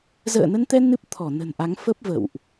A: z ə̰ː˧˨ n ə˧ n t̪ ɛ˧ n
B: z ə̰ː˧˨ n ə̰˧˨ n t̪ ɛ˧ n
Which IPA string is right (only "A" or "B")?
A